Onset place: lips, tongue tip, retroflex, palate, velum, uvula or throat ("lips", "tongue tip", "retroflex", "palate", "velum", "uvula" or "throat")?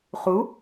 uvula